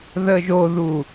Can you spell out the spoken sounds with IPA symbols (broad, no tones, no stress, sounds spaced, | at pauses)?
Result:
ð ə ʒ o ð u